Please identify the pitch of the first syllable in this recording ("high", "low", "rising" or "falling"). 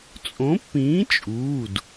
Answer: rising